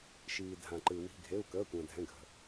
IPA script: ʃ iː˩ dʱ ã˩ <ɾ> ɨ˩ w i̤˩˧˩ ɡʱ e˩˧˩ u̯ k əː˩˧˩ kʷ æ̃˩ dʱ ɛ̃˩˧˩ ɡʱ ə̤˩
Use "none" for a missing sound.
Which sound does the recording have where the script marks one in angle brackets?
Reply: ǃ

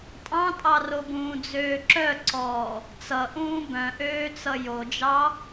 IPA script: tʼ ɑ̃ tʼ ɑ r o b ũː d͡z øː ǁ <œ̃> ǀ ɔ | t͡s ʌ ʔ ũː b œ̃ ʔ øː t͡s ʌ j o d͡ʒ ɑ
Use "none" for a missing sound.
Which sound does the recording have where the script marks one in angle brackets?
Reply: œ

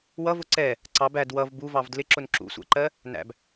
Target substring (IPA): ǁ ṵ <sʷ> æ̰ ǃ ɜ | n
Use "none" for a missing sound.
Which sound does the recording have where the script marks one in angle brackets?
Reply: sʷ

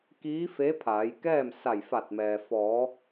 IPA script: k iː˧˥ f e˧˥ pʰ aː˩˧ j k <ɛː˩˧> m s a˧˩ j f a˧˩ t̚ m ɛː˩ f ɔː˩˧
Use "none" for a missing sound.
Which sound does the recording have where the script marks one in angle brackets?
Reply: ɛː˥˨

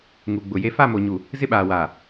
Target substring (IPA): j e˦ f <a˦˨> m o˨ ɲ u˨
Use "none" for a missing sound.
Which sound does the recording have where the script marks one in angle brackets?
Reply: a˦˨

